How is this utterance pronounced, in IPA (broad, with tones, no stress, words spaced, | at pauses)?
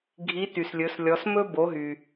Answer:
ɡʱi˧˥ ty˩slʲɵ˩˧slʲɔ˩˧smɵ˥ bo˩˧ɦy˩